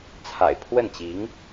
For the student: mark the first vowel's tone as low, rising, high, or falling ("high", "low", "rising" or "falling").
low